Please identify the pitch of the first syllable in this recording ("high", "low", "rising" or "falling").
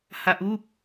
low